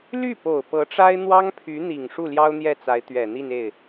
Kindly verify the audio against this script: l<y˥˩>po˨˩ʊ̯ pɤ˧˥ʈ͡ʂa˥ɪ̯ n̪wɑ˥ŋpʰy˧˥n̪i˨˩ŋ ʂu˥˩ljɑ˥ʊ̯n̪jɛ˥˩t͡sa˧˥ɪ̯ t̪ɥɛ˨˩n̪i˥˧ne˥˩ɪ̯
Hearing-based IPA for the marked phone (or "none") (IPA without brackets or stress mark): y˥˩